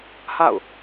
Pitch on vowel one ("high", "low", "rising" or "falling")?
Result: falling